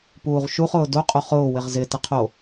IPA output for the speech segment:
p uː ʁ ʃ u χ ʊː d o qʼ o χ ʊː w ɪ ʁ z ɪ t ɪ qʰ o

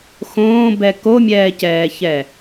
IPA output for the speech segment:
x õː b ɛ k o mʲ ɛː c ɛː ç ɛ

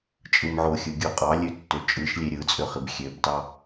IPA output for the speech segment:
t͡ʃʼ ɯ m ʕ o xʲ ɯ ɡʲ o qʼ ɑ lʲ ø tː ø t͡ʃʼ ɯ ʃ lʲ e ɾʲ ɯ t͡sʼ ø χ i b xʲ ø b t ɑ

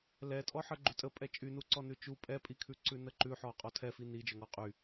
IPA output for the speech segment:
l ɛ tʼ ɔ ħ ə ɡ͡ǃ ʉ tʼ ə pʼ ɛ t͡ʃʼ y n u ǀ ɔ n ʉ t͡ʃ u pʼ ɛ pʼ i kʰ ʉ ǀ ʉ n ə ǃ ʉ ħ ɔ qʼ ɔ tʰ ɛ f i n i d͡ʒ œ ŋ ɔ qʼ y

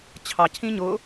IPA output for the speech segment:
t͡ɕʰ ɑ cʰ ĩ ɲ ʊ

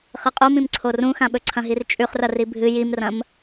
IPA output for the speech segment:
χ ɨ qʼ o m ĩ m ǀʰ o r ũ x ã ɓ ɵ ǀʰ ɐ̃ ɦ i r t͡ʃʼ ʉ χ r ɐ r i bʱ ɨ j i m r ɐ̃ m

